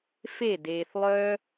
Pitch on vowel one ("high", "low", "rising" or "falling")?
falling